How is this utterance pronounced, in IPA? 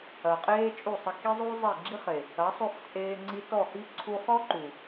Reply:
ɐ˨ qʼ eː˦ t͡ʃʼ u˦˨ sˤ ə˧ k i˦ zˤ u˦ zˤ e˦˨ ɡ͡ǁ i˦ χ e˨ | ɐ˨˦ sˤ u˧ χ t͡sʼ eː˧ ŋ͡ǀ i˧ t ɔ˦˨ h i˦ ǀʰ u˧ χ ɔ˦ ǃ u˨

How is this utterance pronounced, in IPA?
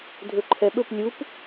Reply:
dʱ ɵ ǃʰ ɛ ɓ ɵ p lʲ u p

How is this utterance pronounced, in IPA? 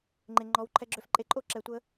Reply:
ŋ͡ǃ e˨ ŋ͡ǃ ɔ˨˦ w ǃʰ ɛ˧ ɡ͡ǁ ø˧ f ǃʼ e˧ ǃʼ o˦ ǁ ɛ˨ tʷ ə˧

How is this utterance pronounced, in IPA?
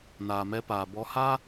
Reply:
n aː˨ m ɛ˧ p aː˨ b ɔ˧ h a˦

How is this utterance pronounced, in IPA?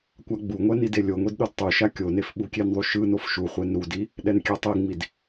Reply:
kʷ a ɡ͡b u ŋʷ ɛ n i d e lʲ o ŋʷ i d ɗ o d tˤ u ʃ a kʲ o n e f ɓ u kʲ e n ðˤ u ʃ ɯ n o f ʃ u χʷ e n ɾ u d i | ɗ ɛ n kʲ ɛ tˤ i ŋ͡m i d

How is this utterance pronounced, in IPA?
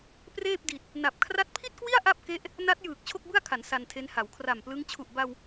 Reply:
p r eː˥˩ p̚ d i˨˩ t̚ | n a˨˩ p̚ kʰ r a˦˥ t̚ pʰ i˥˩ t̚ k w i˥˩ a̯ ʔ a˥˩ p̚ k e˦˥ ʔ | n a˦˥ t̚ j ɯː˨˩ k̚ t͡ɕʰ o˥˩ k̚ b ɯ˥˩ a̯ kʰ a˩˦ n s a˧ n tʰ e˦˥ n h a˩˦ w kʰ r a˨˩ m p l ɯ˦˥ ŋ t͡ɕʰ u˨˩ ʔ b a˧ w

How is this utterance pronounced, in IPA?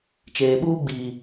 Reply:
t͡ʃ eː˨ ɓ uː˦ ɡ͡b iː˨

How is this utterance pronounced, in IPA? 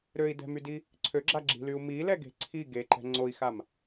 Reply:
ɾ ø i̯ d ɛ̤ m y d i | ǀʰ ø ɡ͡ǁ a ɡ͡ǁ i̤ l y u̯ m i l ɛ ɡ e̤ ǀʰ i ɡ e ǃ ɛ̤ ŋ͡ǀ o i̯ x a m

